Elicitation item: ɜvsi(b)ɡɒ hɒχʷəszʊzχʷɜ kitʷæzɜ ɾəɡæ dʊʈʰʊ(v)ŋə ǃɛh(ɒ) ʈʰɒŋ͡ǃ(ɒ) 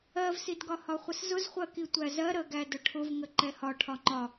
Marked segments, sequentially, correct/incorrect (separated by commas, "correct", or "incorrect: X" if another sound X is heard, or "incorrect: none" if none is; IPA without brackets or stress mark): incorrect: d, correct, correct, correct